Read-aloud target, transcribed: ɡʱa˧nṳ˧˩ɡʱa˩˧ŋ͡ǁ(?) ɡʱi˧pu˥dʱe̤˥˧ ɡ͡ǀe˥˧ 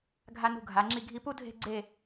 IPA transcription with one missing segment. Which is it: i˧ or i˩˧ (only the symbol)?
i˧